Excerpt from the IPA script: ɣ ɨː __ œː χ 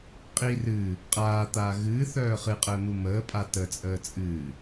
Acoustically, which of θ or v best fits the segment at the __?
θ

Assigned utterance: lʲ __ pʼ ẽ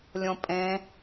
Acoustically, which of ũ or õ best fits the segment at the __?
õ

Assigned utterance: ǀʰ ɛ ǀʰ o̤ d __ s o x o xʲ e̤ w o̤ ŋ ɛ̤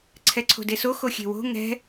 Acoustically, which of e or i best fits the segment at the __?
e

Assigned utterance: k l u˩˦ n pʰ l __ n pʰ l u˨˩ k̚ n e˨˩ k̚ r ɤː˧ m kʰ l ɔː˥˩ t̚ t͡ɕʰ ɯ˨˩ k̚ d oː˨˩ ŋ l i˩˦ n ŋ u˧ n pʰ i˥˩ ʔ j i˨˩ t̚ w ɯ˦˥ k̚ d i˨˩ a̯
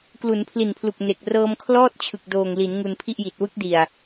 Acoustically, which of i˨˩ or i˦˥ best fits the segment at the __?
i˨˩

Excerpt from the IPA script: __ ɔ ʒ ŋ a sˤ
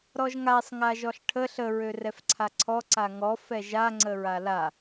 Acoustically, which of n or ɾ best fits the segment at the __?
ɾ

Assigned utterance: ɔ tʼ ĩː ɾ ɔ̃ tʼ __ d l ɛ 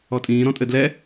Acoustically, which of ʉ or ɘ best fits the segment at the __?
ɘ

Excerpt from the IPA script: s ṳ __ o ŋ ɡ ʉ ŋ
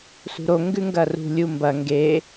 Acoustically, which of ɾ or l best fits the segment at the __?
ɾ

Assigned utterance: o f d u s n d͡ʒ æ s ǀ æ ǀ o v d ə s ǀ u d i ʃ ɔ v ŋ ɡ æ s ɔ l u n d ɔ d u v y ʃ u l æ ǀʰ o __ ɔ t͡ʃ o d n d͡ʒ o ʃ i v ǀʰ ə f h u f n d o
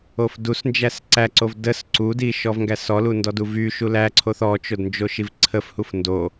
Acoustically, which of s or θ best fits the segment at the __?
θ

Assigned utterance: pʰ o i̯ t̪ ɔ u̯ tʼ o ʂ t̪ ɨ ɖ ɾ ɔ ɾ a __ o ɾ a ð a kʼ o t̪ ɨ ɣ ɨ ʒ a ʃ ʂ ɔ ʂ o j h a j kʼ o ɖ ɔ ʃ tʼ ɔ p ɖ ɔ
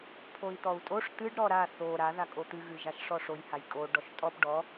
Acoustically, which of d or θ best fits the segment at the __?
θ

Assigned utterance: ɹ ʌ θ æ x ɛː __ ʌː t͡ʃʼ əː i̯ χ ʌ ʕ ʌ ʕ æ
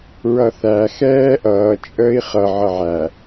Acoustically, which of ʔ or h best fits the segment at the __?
ʔ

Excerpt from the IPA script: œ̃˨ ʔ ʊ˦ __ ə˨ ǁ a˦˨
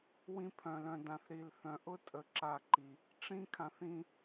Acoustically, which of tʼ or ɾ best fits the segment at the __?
tʼ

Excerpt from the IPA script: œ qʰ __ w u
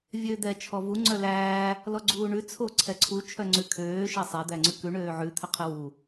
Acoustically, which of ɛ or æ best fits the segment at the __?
ɛ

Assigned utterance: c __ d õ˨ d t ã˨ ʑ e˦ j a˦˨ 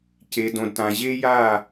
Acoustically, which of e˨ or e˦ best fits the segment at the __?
e˨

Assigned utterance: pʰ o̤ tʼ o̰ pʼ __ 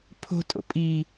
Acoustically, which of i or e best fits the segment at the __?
i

